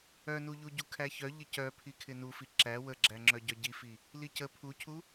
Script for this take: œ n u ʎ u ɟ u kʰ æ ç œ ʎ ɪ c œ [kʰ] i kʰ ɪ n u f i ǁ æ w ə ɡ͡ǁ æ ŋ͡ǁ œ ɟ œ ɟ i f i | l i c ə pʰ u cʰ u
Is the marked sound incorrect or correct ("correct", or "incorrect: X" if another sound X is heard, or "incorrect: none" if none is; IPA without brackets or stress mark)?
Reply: incorrect: pʰ